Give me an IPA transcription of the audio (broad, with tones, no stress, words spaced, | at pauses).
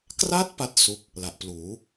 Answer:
kra˦˥t̚ pa˥˩t̚su˦˥k̚ | la˨˩ʔpluː˩˦